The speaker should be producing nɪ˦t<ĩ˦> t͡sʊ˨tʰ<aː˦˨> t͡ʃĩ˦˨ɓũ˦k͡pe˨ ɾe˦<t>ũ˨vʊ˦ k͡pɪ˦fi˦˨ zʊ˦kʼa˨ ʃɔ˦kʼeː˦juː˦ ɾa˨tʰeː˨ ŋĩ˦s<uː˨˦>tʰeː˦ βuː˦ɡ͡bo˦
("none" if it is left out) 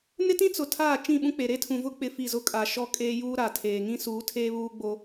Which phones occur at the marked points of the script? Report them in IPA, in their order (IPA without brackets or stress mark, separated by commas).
ĩ˦, aː˦˨, tʰ, uː˨˦